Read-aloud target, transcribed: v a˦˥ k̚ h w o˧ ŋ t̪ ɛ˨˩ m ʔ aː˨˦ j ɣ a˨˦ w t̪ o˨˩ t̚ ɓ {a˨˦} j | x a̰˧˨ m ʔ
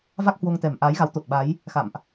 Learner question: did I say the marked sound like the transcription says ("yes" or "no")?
yes